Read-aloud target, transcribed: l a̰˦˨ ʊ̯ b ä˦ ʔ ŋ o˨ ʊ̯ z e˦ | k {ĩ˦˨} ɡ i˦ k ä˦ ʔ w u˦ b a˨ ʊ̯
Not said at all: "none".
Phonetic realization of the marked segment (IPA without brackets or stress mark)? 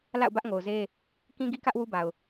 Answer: ĩ˦